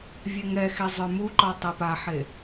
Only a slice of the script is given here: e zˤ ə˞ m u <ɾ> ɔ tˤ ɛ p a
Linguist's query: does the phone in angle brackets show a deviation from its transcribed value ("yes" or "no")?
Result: yes